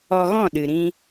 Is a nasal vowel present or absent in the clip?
present